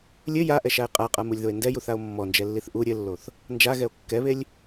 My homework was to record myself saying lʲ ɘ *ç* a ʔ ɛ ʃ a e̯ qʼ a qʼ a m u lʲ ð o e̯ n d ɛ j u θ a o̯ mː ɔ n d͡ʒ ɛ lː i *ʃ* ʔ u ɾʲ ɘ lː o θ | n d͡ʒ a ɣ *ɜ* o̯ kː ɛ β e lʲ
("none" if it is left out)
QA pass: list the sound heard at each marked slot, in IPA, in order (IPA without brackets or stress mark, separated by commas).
j, θ, ɛ